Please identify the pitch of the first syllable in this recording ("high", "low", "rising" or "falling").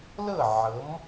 falling